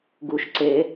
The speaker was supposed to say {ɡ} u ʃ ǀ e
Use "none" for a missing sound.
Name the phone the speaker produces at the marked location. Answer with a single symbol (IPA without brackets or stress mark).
ɡ